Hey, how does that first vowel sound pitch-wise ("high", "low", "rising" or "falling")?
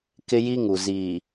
high